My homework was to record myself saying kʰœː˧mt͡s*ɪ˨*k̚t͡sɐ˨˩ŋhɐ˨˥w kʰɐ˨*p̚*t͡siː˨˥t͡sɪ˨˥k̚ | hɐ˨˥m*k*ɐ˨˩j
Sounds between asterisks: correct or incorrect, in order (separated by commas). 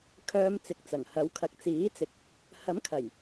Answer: correct, incorrect, incorrect